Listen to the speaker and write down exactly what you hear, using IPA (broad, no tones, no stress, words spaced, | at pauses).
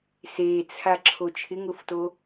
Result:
set͡sʰaǁʰo t͡ʃʰɪŋʊfto